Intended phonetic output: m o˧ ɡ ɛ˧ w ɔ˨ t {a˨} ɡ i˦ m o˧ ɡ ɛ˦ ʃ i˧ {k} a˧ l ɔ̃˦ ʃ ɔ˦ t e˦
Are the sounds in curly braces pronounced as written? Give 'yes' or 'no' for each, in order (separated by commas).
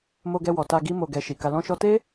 no, yes